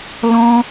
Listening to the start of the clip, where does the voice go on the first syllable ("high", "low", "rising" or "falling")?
high